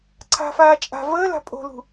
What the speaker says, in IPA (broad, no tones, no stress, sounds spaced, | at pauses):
ǀʰ a̤ f aː t͡ʃʼ a̤ v əː l a̤ pʼ o̤ l ṳ